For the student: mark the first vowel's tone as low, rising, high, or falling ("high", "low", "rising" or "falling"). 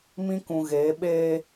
high